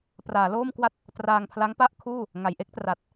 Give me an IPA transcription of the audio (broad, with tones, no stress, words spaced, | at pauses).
praː˩˦loː˥˩m kwa˥˩t̚ | traː˧ŋpʰla˦˥ŋpa˥˩ʔkʰuː˥˩ | ŋa˨˩jʔe˥˩k̚tra˨˩t̚